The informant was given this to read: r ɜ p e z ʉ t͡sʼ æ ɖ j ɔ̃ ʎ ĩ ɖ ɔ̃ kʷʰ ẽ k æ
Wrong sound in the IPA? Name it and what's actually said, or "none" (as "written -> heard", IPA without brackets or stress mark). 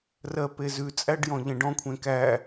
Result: ĩ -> ẽ